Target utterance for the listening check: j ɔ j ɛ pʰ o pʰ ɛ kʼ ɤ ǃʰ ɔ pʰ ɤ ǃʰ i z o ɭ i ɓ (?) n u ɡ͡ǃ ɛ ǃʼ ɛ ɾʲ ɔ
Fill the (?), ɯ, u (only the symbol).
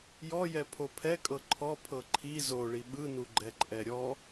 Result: ɯ